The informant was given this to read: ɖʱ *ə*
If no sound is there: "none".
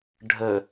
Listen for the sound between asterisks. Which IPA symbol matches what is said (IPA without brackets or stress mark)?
ə